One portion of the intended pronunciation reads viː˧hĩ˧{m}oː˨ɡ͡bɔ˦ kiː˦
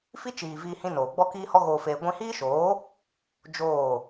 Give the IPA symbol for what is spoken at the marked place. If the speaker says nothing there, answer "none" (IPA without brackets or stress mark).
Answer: n